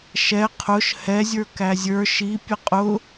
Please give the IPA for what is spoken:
ʃ ɛ qʰ ʊ ʃ h ɛ zʲ ə˞ k æ zʲ ə˞ ʃ i pʲ ə qʼ ʊ

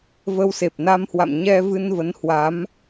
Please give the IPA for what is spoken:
v ə˧ w s e˨˩ p̚ n a˧ m h w a̰˧˨ m ɲ ɛ˧ v ɨ˧ n v ə˨˦ n h w a˨˦ m

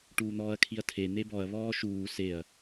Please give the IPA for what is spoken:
ʈ uː n̪ ɔː ɐ̯ kʰ i ɐ̯ tʰ e n̪ e b ɔ ɐ̯ β ɔː ʃ uː s e ɐ̯

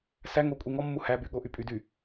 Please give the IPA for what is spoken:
s æ ŋ o kʷʼ i ŋ ɔ mː u h æ b y ɠ o ʔ y pʼ y d y

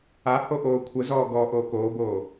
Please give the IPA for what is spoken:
a h o ʔ oː kʷʰ ə z ɔː ɡ ɔː ʔ oː k oː b oː

